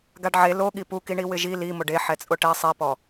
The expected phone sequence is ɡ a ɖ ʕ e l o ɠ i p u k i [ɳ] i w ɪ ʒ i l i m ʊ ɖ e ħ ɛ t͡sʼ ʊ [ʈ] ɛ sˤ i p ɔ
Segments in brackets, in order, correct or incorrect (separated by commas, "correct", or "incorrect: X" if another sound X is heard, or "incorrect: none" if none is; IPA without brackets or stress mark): correct, correct